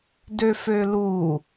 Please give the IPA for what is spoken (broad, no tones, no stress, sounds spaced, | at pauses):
d ø f ø l u